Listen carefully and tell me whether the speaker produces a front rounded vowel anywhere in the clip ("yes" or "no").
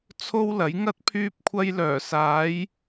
yes